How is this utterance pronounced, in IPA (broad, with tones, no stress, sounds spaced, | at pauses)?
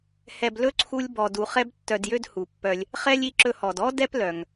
h ɛ˨ b l ɵ˦ ǀʰ u˦ lʲ b ɔ˨ d u˨ χ ɛ˦ b tː œ˨ d j ø˦ d h u˩ pː œ˨ lʲ | χ ɛ˥ lʲ i˦ ǁ ɵ˦ h ɔ˨ d ɔ˥ d ɛ˥ p l œ˩ ŋ